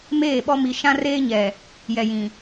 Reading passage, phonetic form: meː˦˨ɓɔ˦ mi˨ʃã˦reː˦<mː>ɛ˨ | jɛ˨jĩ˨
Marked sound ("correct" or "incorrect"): incorrect